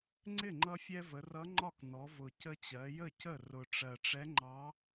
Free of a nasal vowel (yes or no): yes